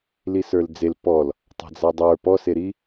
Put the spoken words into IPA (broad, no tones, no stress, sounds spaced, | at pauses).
l i s ə˞ l d͡z e l p ɔ l | tˤ a̤ d͡z a dˤ ə˞ p ɔ s e ɾ i